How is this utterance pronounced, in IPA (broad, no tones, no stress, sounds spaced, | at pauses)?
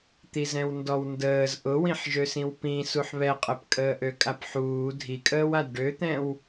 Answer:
t̪ i z ɛ̃ w n d ɔ w n d əː z ʔ ʊ w ĩ ħ ʒ ø s ĩ w p ĩ s u ħ β ɛ qʼ ɛ p kʼ əː ʔ ø kʼ a p ħ uː dʱ i kʼ əː w a d ɖ ø t̪ ɛ̃ w